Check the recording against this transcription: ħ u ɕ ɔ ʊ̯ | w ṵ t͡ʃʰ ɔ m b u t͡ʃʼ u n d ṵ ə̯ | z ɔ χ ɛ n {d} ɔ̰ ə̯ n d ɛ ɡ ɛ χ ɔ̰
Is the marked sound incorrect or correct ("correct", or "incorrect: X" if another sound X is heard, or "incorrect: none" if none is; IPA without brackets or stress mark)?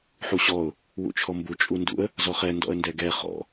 correct